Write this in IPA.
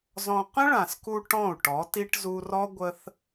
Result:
z ɔ̃˧ q ə̃˦ ɭ ã˨ s k u˧ ʈ ɔ̃˦˨ u̯ ʈ ɔ˨˦ t i˧ ʈ z u˧ r ɔ˦ ɡʷ ə˦ θ

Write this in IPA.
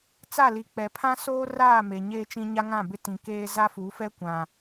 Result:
t͡s a˦˨ l i˨ k͡p ɛ˨ pʰ ã˦ s oː˦ r aː˦˨ m e˨ ɲ eː˦ t͡ʃ ĩ˦ ɲ a˦ ŋ ã˦˨ b ɪ˦ t ĩ˨ k eː˦ z a˦ f u˨˦ f ɛ˦ kʷ ã˨

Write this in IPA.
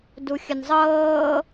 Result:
d u xʲ ə n zˤ ɤː

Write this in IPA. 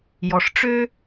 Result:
j ɔ˨ ʂ ʈ͡ʂ ø˦

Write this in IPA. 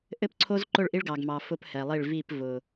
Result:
ʔ ɘ˦ p ǀʰ o˦ z ǃ ʊ˦˨ ɭ ʔ i˦ ɭ ɡ ɑ˨ ɡ m ɑ˨ f ʊ˦ p h ɛ˨ lˠ i˦˨ ɭ v i˦˨ p v ʊ˨

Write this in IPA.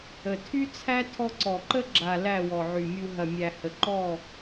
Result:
ə˨ tʰ y˦ t͡sʰ æ˦ tʰ ɔ˧ ǀ ɔ˨ ǃ ə˦ ɡ͡ǁ a˨ l æ˦˨ w ɔ˨ ʕ y˨ mʲ u˧ ɦ ɐ˨ mʲ æ˨ h ə˨ ǃ ɔ˦˨

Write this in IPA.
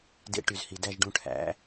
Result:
d ḛ˧ ʈ y˨ z h i˨ d æ˦˨ ʒ ɖ ũ˧ ʈʰ æ̰˨˦

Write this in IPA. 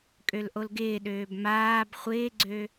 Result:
kʼ ø l ʔ o l ɡ ɪː ɗ øː b m aː b χʷ ɪː ɡ͡ǀ ø

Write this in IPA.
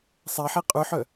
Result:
sˤ ɛ ħ i qʼ ʉ ħ œ

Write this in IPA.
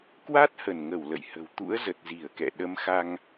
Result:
k w a˦˥ t̚ h ə˧˩ n ŋ ə˧˩ w l ə̰˧˨ j h ə̤˨˩ w t̪ ṵ˧˥ ə̯ z ə˨˩ t̚ z i˧˩ ə̯ k ɛ̰˧˨ ɗ ə˨˦ m x a˧ ŋ

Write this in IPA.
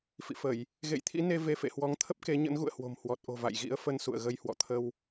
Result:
f ḭ˧˨ f ə˧˩˨ j | ɣ ḛ˧˨ j t̪ʰ ḭ˧˥ n e˧ v e˧ f ḛ˧˨ h w ɔ˨˦ ŋ t̪ʰ ə˦˥ p̚ k e˨˦ ɲ ə̰˧˥ n ɣ ṵ˧˨ ə̯ h w o̤˨˩ m h w ɔ˨˩ t̚ ʔ o̤˨˩ v a̰˧˨ j ɣ ḭ˧˥ ə̯ f ə˧ n s ṵ˧˨ ə̯ ɣ ə˧ j h w ɔ̰˧˨ t̪ʰ ə˧ w

